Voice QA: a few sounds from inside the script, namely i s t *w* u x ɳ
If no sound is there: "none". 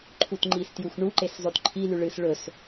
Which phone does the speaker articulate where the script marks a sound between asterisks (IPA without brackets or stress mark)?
j